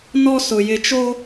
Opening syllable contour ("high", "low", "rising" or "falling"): high